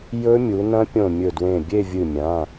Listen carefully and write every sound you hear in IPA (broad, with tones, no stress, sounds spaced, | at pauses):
j ɵ˦˥ mʲ u˩˧ n ɐ̃˦˥ pʲ õ˧˩ mʲ ɵ˧˩ d w ẽ˧˩ bʲ e˥˧ vʲ ɨ˧˩ mʲ ã˩˧˩